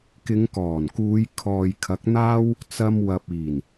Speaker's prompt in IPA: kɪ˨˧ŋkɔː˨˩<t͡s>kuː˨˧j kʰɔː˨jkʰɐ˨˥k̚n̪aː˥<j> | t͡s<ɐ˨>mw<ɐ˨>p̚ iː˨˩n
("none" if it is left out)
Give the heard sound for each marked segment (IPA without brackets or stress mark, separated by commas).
n, w, ɐ˧, ɐ˨